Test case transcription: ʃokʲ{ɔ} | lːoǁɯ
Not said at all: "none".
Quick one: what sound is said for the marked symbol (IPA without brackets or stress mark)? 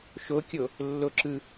o